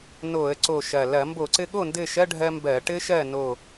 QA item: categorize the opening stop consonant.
click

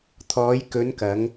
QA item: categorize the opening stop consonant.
aspirated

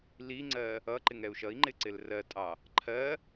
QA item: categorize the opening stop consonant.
click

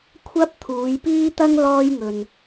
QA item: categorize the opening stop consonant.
aspirated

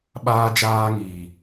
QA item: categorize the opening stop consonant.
implosive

